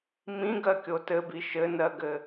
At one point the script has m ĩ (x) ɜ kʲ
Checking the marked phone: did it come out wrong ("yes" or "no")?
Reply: yes